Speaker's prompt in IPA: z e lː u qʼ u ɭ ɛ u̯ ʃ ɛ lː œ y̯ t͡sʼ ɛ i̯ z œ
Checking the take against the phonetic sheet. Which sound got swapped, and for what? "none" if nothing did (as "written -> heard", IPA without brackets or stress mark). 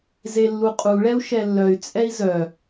none